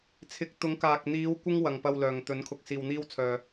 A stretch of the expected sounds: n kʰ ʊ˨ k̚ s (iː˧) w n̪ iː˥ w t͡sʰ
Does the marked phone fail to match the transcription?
no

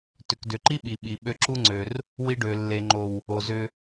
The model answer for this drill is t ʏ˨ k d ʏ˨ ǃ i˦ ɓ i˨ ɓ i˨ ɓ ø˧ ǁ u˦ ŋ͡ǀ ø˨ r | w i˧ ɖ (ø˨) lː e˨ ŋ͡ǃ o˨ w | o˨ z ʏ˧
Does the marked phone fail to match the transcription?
no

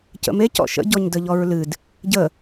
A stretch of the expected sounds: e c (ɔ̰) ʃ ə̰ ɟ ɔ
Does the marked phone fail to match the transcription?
no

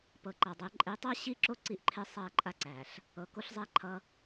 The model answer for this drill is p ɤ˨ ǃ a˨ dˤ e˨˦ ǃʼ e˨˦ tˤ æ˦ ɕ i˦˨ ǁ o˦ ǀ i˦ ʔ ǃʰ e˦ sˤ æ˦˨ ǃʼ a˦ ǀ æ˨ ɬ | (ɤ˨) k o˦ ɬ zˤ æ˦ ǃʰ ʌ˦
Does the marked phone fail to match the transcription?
no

